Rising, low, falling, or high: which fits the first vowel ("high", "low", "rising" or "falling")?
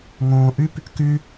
low